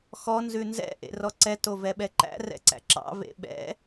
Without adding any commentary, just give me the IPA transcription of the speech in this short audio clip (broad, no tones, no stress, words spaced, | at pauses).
xɔ nzʉnzɛ̰ ʔḛrɔǀɛ tovɛɓɛǃæ̰ rɛ̰ǀæ̰ǁɑ̰ vḛɓɛ̰